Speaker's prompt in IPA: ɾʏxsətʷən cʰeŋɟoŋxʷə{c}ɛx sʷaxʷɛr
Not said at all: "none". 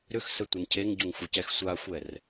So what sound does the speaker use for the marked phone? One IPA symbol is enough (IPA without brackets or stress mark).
c